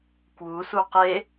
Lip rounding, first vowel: rounded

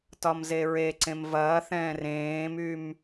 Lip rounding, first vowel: rounded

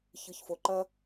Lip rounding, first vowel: unrounded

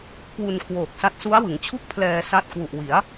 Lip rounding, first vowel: rounded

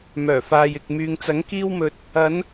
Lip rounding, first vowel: rounded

